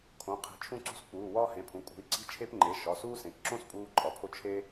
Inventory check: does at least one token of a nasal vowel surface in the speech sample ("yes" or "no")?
yes